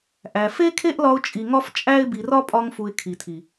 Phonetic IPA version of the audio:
ʔ æ˨ f e˦ kʰ e˦ ʔ l ɒ˧ ʊ̯ t͡ʃʼ i˨ ŋ ɒ˦ f t͡ʃʼ æ˦ ɪ̯ b i˨ r ɒ˦ pʼ ɒ˧ ŋ f u˨ ɪ̯ kʰ i˨ tʰ i˨

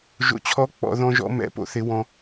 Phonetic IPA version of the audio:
ʒ o̰˨ t͡ɕʰ ɔ˨˦ k͡p ɔ̰˨ ð ɔ̃˧ ʒ ɔ̰˧ m ɛ̰˨˦ p o̰˦ θ ɪ˨˦ w ɔ̃˧

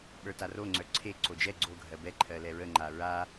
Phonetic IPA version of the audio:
ɓ ə˞ t a r o ŋ͡ǀ œ ǀʰ e ǀ o d͡ʒ ɛ ɡ͡ǀ o ɡʱ ɜ b ɛ ǃʰ ɜ l ɛ ɹ ə ŋ͡ǃ a ɹ a

